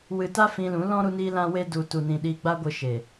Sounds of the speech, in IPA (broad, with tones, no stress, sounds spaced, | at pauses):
w ɨ˧ t a˦ f ĩ˧ l ũ˨˦ l ɔ̃˦ ɾ u˦ n iː˦ l ã˦ w e˦ d u˨ t u˨ n ĩ˨ ɗ iː˧ ɡ͡b a˦ ɡʷ ɨ˧ ʃ e˨